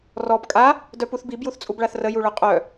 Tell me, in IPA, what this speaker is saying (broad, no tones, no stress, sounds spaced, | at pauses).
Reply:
r ɔ b kʼ a | d œ p u θ b i b j u θ t͡sʼ u b ɭ a θ r ə j u ɭ œ qʼ œ